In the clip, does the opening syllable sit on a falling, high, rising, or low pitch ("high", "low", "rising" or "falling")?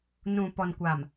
low